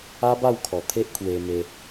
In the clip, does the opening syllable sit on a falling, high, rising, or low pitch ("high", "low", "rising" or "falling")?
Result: high